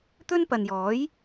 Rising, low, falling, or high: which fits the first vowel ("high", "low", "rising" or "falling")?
high